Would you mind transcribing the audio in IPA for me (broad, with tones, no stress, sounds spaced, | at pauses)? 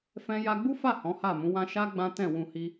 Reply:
f ɛ̃˦ j a˧ ɡ͡b u˦ f a˦˨ h ɔ̃˨˦ h a˦˨ m ũ˨˦ w ã˦ ʃ a˦ ɡ͡b ã˦ t ɛ̃˦˨ w ũ˧ h i˦